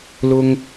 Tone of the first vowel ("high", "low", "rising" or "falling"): high